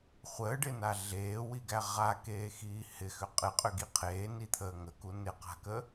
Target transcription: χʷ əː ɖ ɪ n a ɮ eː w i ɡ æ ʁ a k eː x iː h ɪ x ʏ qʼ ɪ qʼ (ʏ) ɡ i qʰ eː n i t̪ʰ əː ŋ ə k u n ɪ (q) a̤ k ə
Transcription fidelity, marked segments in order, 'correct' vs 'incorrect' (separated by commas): correct, correct